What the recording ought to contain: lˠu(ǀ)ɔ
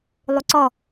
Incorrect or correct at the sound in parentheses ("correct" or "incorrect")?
correct